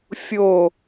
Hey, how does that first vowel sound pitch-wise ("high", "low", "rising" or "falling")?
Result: falling